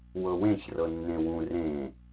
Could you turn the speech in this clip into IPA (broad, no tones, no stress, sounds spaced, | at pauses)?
w ɤ w ẽ ç r ɤ nː ẽ w ũ r ẽ